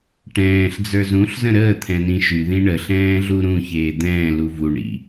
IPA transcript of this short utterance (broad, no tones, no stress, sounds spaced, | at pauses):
ʈ ɛ̃ː ɬ d͡z ə˞ z ũ ɬ z ə̃ ɾ əː t̪ʰ ɛ̃ n ĩ ʃ y ð ĩ ɳ ə ɬ ɛ̃ː ɮ u ɾ ũ ç eː d̪ ɛ̃ː l u v u ɳ ḭ